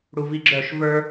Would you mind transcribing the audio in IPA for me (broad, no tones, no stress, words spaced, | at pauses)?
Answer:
ɽuviɡ͡ǁœʃ və˞